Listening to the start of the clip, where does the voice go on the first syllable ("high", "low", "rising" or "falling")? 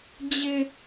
high